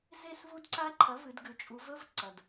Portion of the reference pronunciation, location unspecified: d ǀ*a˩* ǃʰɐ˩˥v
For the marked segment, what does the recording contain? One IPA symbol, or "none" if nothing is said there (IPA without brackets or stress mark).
a˦˥